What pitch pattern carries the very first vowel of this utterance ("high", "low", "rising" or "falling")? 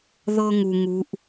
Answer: high